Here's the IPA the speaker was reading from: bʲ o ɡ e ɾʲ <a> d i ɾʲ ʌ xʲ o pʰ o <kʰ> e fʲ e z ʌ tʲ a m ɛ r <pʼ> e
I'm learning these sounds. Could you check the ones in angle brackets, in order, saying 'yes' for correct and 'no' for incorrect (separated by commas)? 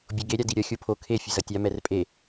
yes, yes, yes